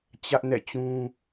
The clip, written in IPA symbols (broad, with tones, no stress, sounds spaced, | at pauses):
t͡ɕ ä˦ ʔ n ɛ̰˦˨ t͡ɕ ũ˦